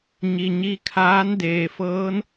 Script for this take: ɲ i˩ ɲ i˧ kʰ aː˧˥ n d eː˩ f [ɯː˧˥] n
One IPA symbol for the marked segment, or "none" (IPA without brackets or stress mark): ɤː˧˥